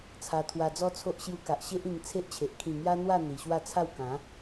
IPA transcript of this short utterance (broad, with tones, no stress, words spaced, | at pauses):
t͡sʰa˧t̪ʰwa˧d͡zɔ˦t͡sʰo˦ʔ ɕju˧ka˨ʔɕe˦ʔ ĩ˧ŋt͡sʰe˦ʔt͡ɕʰe˨ʔ kʰĩ˨˩ ŋja˦n̪wa˥˧ n̪i˨˩ɕwa˥˧t͡sʰa˥˧w kã˨˦